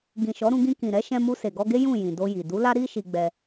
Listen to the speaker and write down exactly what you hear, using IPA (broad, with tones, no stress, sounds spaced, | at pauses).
ɡ ĩ˨ ʃ ɔ˨˦ ɾ ũ˧ ɡ ĩ˧ k ĩ˨ ɾ ɛ˨˦ ʃ ɛ̃˧ m u˧ s e˨ ɡ ɔ˧ ɡ e˦ j ũ˦˨ j ĩ˨ d o˧ j i˨ d u˨˦ l a˦ ɾ i˦ ʃ i˧ ɡ͡b ɛ˧